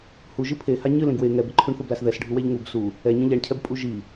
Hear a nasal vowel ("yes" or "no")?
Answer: yes